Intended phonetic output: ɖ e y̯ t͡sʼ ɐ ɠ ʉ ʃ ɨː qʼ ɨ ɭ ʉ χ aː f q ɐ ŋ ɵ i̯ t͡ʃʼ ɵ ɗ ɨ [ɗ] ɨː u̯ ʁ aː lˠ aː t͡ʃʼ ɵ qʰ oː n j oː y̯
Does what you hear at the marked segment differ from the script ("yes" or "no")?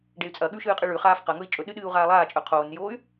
no